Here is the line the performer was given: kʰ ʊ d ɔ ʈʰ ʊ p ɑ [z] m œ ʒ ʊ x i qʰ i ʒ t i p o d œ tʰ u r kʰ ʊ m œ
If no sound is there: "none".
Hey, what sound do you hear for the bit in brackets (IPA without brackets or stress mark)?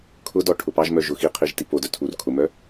ʒ